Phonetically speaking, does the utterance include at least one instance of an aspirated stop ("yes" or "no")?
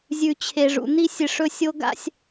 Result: yes